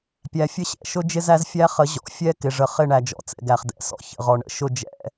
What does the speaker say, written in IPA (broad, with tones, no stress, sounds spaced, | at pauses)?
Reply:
pʲ æ˨ fʲ ə˦ ɕ ɛ̰˨ ʃ ʊ˦ d͡ʒ ɪ˦ z æ˦ z fʲ æ˦ χ ə˨˦ ʑ ɔ̰˨ fʲ ɛ˦ k ɪ˨ ʐ ə˨ χ ɪ˦˨ ɳ æ˨ d͡ʒ ɔ̰˨ t͡s ɛ̰˨ ɡ æ˨ χ d ɛ̰˨ s ɔ̰˦ ç ə̰˨ ʁ ɔ˨ ɳ ə̰˨ ʃ ʊ˦˨ d͡ʒ ɛ̰˨